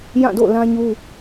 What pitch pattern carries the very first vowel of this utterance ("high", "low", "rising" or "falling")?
falling